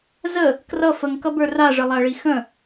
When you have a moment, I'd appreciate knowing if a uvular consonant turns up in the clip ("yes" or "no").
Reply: no